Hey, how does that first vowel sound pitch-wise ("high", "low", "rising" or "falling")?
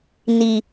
low